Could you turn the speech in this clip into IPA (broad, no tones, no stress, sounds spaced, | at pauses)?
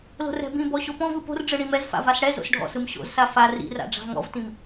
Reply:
l o̤ r ɛ̤ b ĩ b ɔ ɕ o p ɔ̃ v ɯ p o̤ r ɖ͡ʐ ɯ ɽ ĩ m ɛ z f a̰ v a s ɽ ɛ z o̰ s ɖʱ ɔ̰ s ɯ m ɕ o̰ z s a f a r ḭ r a̰ ɖ͡ʐ a̤ v ŋ ɔ̰ v t ĩ m